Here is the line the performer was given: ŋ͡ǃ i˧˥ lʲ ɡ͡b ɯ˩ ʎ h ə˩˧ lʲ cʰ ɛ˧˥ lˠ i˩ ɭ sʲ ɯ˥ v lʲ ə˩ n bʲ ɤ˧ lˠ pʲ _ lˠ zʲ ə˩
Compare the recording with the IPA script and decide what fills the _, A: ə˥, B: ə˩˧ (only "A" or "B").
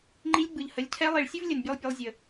B